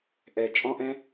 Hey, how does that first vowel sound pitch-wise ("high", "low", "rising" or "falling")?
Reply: low